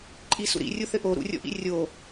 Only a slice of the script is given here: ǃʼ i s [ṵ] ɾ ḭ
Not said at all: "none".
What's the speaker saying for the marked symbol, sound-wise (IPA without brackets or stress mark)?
ṵ